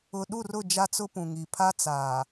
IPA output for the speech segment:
ʊ˨ ɗ u˦˨ r ʊ˦˨ d͡ʒ a˦ t͡s ʊ˦ p ũ˨ ŋ i˨ pʰ a˦ t͡s aː˨

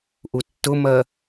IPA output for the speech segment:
ʔ u tː ʊ m ɜ

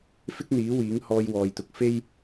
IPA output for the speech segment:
f ɪ˥ k̚ n̪ iː˨˥ w iː˨˥ ŋ h ɔː˧ j w ɔː˨ j t̪ ʊ˨ k̚ f e˥ j

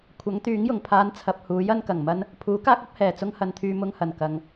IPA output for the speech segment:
kʷʰ ɐ˨˥ ŋ t̪ yː˨˥ ŋ j ʊ˨˩ ŋ pʰ aː˧ n t͡sʰ ɐ˨ p̚ h uː˨˥ j ɐ˧ n k ɐ˨˩ ŋ m ɐ˥ n | pʰ uː˨˥ k aː˥ k̚ ɐ˨˥ p̚ h ɛː˨˩ t͡s ʊ˥ ŋ h ɐ˨˧ n t̪ʰ yː˧ m ʊ˧ ŋ h ɐ˨˩ n k ɐ˨ ŋ

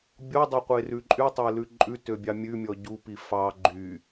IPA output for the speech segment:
bʲ o dˤ ø qʷ e r ʉ ǃʼ y tˤ e l ʉ ǃʼ ʉ t ø bʲ ɑ mʲ ʉ mʲ ɔ ɟ u p i f ɑ ɡ͡ǃ y

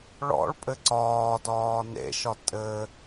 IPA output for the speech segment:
ɭ ɔ̰ ɭ pʼ ɘ ǀ ɒː d ɒː n ḛ ʃ ɒ tʼ ɘ

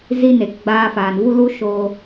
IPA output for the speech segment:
z i˧ n e˨ k ɡ͡b aː˧ f aː˨ n v u˦ l u˦ ʃ oː˧

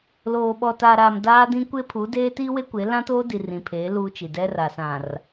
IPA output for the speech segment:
l oː˨ ɓ ɔ˨ t aː˨ ɾ a˨ m d aː˦ d ĩ˦ kʷ e˦ pʰ u˨˦ d eː˦ t iː˦ w e˦ kʷ e˨˦ l ã˦ t oː˦ d i˨ r ĩ˨ pʰ eː˨˦ l uː˦ t͡ʃ i˨ d ɛ˦ r a˨ s ã˨ r

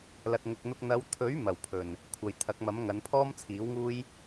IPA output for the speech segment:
l ɐ˨ t̚ ŋ ʊ˨ k̚ n̪ ʊ˧ k̚ n̪ ɐ˨˧ w t̪ʰ ɵ˨˥ ɥ m ɐ˨˩ w pʰ ɵ˨˩ n | kʷʰ ɐ˨ j t̪ʰ ɐ˨˥ k̚ m ɐ˨˥ m ŋ ɐ˨˧ n pʰ ɔː˥ m t͡sʰ iː˨˥ w ŋ uː˥ j

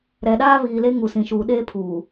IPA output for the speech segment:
ɾ ɛ˨ ɗ aː˦ β iː˨ l e˦ ŋ u˨ s ĩ˨ ʃ uː˨ ɗ eː˦ pʰ uː˨

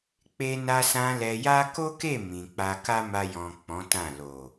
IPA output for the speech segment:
k͡p e˧ n a˧ s ã˧ l ɛ˧ j a˦ k o˦ k e˦˨ m ĩ˨ k͡p a˧ k a˦ m a˧ j ɔ̃˨ k͡p ɔ̃˨˦ t ã˦˨ l o˨

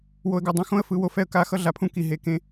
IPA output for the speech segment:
w o˨ ə̯ ɡ o˨ dˤ õ˨ x õ˦ ə̯ f ɯ˨˦ w o˨ f ɛ˦ ə̯ k a˦˨ x ʌ˦ ɮ a˨ pʰ ũ˦ k i˨ ɦ e˨ k ẽ˦

